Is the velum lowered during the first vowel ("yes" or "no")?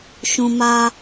yes